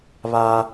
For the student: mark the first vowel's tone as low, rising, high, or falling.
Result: high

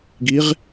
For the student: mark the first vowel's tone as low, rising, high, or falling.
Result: rising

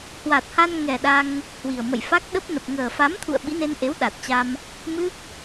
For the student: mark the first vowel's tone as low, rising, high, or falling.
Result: low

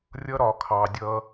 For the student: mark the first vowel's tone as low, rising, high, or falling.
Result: high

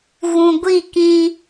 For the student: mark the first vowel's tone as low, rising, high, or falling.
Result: low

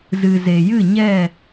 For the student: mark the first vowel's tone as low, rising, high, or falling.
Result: low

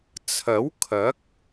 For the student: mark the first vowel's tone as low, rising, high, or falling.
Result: rising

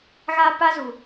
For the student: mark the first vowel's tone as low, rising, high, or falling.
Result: high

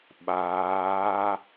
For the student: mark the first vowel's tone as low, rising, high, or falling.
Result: rising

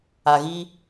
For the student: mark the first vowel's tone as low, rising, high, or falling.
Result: low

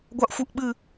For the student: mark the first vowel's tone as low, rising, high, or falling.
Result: high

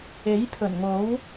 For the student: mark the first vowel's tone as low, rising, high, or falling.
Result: rising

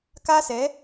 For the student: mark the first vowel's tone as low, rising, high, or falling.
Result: high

